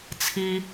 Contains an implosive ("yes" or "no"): no